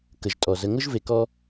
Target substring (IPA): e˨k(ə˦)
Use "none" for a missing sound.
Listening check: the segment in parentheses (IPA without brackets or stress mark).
ɔ˦